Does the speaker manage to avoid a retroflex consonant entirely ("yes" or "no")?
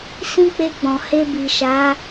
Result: yes